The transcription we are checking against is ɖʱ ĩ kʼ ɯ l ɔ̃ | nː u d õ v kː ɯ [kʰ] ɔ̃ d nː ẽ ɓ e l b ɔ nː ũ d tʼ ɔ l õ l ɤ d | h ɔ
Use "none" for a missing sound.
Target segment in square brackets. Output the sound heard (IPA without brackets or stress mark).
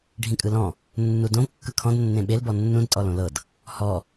kʰ